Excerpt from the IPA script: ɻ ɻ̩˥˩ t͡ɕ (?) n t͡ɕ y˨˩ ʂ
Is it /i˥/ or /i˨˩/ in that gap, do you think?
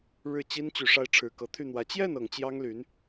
i˥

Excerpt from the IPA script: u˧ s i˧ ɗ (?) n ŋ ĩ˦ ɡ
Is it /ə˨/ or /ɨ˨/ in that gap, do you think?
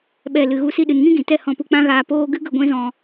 ɨ˨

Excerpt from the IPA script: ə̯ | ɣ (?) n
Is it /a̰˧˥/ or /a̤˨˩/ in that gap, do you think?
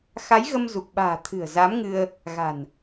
a̤˨˩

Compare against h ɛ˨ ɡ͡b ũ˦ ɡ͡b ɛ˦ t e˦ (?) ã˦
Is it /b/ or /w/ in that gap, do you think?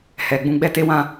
w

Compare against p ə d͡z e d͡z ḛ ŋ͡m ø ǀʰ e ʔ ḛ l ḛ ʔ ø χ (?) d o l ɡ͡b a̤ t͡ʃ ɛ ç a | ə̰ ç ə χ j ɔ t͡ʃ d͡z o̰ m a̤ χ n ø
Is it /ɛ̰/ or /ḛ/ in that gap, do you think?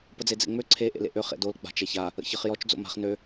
ḛ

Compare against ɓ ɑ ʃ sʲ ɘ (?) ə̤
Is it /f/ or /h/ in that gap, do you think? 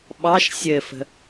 f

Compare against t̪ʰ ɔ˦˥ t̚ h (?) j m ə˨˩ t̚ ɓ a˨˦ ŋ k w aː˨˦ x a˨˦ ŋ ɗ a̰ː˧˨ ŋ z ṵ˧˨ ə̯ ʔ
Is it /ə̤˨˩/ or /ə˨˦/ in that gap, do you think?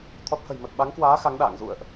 ə̤˨˩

